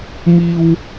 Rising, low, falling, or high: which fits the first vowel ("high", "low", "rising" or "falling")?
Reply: high